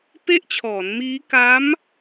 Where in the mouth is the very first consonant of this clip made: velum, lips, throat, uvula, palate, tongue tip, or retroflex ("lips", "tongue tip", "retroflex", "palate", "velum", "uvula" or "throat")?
lips